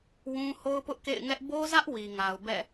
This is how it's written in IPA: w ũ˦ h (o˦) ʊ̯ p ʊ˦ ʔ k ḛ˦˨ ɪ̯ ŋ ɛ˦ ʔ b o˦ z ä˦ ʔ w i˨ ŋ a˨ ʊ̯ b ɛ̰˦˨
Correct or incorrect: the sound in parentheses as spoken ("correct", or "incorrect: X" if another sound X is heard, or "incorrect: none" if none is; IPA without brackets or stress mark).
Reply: correct